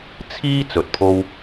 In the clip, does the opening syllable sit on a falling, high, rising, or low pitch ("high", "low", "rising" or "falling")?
high